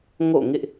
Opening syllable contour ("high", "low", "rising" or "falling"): falling